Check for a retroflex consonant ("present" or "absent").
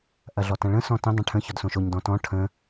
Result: present